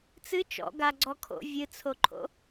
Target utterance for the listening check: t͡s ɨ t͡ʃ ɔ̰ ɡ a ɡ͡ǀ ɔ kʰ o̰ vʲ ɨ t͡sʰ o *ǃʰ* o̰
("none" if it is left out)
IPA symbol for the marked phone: ǃʰ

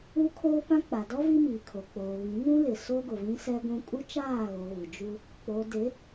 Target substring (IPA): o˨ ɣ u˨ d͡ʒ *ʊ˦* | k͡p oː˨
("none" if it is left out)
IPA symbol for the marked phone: u˦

